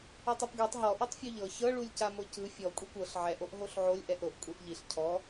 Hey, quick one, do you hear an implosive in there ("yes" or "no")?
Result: no